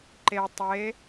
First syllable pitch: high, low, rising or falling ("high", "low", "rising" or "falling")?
low